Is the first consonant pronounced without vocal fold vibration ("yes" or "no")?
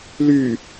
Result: no